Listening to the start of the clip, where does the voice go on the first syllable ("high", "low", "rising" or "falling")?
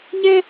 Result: high